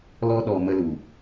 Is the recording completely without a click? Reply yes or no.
yes